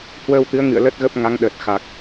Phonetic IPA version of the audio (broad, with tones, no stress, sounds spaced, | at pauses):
h w əː˧ w t̪ ɨ˨˦ ə̯ ŋ ɨ̰˧˨ ə̯ l ə˦˥ t̚ ɣ ə˦˥ p̚ ŋ a˨˦ ŋ ɗ əː˨˩ t̚ x a˨˩ k̚